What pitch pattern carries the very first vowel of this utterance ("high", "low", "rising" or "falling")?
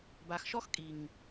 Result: low